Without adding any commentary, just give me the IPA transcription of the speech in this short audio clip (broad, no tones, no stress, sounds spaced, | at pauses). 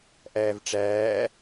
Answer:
ʔ æː v ʈ͡ʂ æː